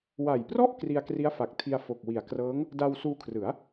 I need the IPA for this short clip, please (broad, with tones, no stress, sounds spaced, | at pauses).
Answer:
w a˨˩ j p r ɔ˥˩ ʔ k r i˧ a̯ k r i˦˥ a̯ f a˨˩ k̚ tʰ i˧ a̯ f o˨˩ k̚ w i˩˦ a̯ k r ɤː˦˥ ŋ | d a˧ w s uː˧ kʰ r ɯ˩˦ a̯